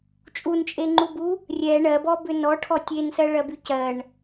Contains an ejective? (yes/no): yes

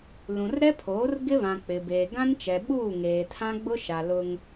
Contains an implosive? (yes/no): yes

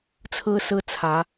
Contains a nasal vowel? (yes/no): no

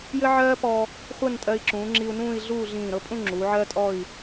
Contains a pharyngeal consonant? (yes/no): yes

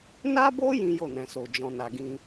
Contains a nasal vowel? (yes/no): yes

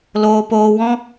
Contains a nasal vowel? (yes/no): yes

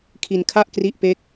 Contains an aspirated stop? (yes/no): yes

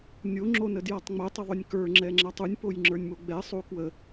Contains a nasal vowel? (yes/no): no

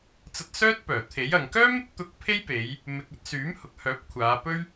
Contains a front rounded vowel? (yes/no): yes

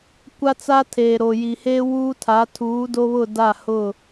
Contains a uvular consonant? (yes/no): no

